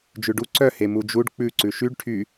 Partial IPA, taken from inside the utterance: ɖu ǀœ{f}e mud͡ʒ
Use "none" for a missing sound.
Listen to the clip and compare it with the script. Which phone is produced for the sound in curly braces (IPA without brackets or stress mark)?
h